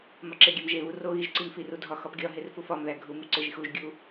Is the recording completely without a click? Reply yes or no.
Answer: no